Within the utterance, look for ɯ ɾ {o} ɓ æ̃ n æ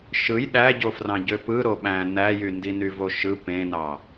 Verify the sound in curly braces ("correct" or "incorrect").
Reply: correct